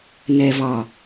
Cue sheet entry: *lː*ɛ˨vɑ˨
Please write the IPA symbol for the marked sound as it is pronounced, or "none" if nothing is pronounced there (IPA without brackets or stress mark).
n